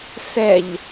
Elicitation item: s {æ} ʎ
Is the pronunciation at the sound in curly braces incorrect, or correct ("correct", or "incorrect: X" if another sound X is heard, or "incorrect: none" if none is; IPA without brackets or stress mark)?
incorrect: ɛ